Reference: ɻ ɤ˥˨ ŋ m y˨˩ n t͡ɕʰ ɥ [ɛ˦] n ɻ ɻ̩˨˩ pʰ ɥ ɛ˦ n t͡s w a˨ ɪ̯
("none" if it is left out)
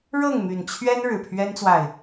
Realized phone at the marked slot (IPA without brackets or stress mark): ɛ˦